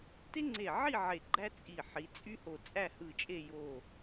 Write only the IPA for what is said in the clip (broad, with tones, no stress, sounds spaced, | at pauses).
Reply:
t e˥ ŋ͡ǀ e˧˩ ʕ i˥˧ ʕ e˧˩ ɡ͡ǃ æ˥ t͡sʼ i˧˩ ħ i˩˧ t͡sʼ y˥ h o˧˩ t͡sʼ æ˥˧ h ɯ˧˩ t͡ʃʼ e˥˧ j o˧˩